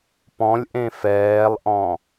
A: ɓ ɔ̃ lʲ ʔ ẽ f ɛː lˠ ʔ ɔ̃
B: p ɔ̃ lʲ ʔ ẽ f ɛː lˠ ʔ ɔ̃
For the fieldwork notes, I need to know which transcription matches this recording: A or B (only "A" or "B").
B